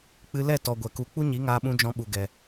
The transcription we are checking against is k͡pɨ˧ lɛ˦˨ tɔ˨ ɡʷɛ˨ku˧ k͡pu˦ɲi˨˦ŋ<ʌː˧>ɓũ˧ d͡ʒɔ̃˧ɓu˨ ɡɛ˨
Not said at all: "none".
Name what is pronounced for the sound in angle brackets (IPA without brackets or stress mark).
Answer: aː˧